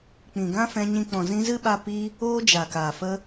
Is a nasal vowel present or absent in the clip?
present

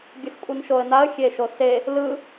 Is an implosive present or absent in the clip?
absent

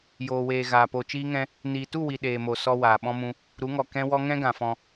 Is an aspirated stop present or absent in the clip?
absent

